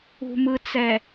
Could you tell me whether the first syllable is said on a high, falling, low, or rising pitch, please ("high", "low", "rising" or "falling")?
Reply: low